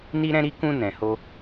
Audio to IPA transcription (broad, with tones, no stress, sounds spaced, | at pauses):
n i˧ ɾ ɛ̃˧ ɾ i˧ k ũ˧ n ɛ̃˨ h o˧